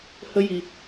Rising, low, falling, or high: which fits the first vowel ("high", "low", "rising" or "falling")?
high